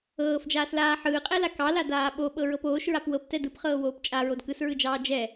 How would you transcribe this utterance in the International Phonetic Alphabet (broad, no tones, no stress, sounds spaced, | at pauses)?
ɤː f d͡ʒ aː s l aː ħ ɯː qʼ ɛ l a k ɑ l a d aː ɓ o ɓ ɤ ɹ ɤ p oː ʃ ɹ a p w ɤ p t ɛ d ɯ p χ ɤː w oː p t͡ʃʼ a ɹ o d k ɯ s ɹ ɯ d͡ʒ ɑː d͡ʒ ɛ